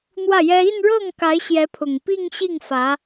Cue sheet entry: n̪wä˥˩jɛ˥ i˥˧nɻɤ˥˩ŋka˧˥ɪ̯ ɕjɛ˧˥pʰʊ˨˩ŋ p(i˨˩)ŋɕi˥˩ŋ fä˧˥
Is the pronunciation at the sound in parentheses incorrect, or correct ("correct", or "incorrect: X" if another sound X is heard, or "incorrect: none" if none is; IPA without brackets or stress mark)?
incorrect: i˥˧